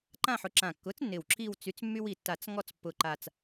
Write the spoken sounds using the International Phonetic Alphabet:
ǃã˦˨ħʊ˩˥ ǁã˨˩kːʊ˩˥t͡snːɪ˨˩w ǁi˦˨wt͡sy˩˥t͡smːy˦w i˨˩tːa˨˩˦t͡s ŋɔ˦˨t͡spːʊ˨˩ǃa˨˩t͡s

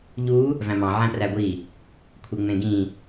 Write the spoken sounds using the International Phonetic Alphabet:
ʎu | væ̃mɑ̃ ʕæ̃præɡʷi | kʷʰeŋ͡mẽɡĩ

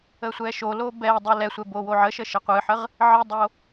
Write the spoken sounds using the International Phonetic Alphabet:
əsʷɛʃolo bɛdˤə lɛsʷɛ bowoʕəʃə ʃəqʷɨħəʁ | ʕɨdˤo

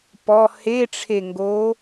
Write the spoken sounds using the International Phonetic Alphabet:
pɔ heʈ͡ʂʰeŋɡo

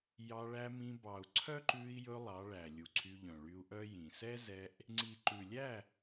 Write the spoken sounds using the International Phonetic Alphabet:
jɑ˧ɭæ˧mĩ˧bɑ˨u̯ ǀʰœ˦ǃʉ˧i̯jɵ˧ lˠɑ˨˦ ɭæ˨lʲu˨ǀʰy˧ʎœ̃˨ ɭy˧u̯ʔœ˦jĩ˨ sɛ˦zɛ˧ʔ | ŋ͡ǀi˨ǃʉ˨lʲæ˦˨

